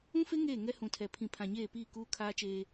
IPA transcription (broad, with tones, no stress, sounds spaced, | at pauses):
ũ˦ f e˦ ŋ eː˦˨ ŋ ɛ˦ h ũ˨ tʰ ɛ˨ pʰ ĩ˨ pʰ ã˨ ɲ eː˦˨ p iː˦˨ k uː˦ kʰ aː˦ t͡ʃ eː˦